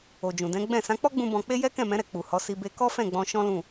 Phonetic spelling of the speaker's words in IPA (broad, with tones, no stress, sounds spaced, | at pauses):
o˨ d͡ʒ ũ˨ d ɛ̃˨˦ ɡ͡b ɛ̃˦˨ s ã˨˦ k͡p ɔ˦ ɡ͡b ũ˧ b ɔ̃˧ k͡p e˦ j ɛ˦ k ɛ̃˦˨ m ɛ̃˨˦ ɾ ɛ˧ k͡p u˨ h ɔ˨˦ s i˧ b e˧ k ɔ˦ f ɛ̃˦˨ ɡ͡b ɔ̃˧ ʃ ɔ̃˦ l ũ˦˨